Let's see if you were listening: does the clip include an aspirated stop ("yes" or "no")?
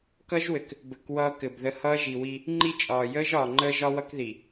no